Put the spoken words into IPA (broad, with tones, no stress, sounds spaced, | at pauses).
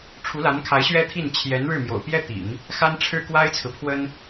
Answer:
ʈ͡ʂʰ u˧˥ l a˧˥ n kʰ a˧˥ ɪ̯ ɕ ɥ ɛ˥ t̪ʰ i˥˩ n t͡ɕʰ j ɛ˧˥ n ɻ ɻ̩˥˩ m j o̰˨˩ ʊ̯ p j ɛ˥ t̪ ḭ˨˩˦ ŋ | x a˥ n ʈ͡ʂʰ ɻ̩˥˩ k w a˥ ɪ̯ t͡sʰ ɹ̩˨ pʰ w ə˥ n